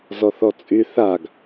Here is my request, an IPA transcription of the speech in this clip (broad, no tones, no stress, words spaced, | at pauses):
zɔθɔt͡sʼy θaɡ